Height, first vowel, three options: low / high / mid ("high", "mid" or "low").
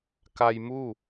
low